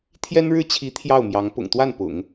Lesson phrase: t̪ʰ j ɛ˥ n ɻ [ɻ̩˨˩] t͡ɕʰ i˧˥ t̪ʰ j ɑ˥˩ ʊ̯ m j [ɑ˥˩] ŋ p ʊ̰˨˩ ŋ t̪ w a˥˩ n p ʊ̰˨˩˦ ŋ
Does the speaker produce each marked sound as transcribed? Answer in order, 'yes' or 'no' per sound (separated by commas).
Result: no, no